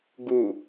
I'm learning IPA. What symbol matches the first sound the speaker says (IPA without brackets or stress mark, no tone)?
ɡ